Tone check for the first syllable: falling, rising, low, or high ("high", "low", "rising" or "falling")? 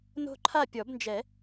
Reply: falling